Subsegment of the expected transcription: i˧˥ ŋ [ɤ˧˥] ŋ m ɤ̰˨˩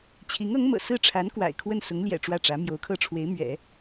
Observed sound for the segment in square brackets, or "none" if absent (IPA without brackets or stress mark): ɤ˧˥